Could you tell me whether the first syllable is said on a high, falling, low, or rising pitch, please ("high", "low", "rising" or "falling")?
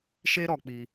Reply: high